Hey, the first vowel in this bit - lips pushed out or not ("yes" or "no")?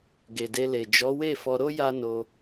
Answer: no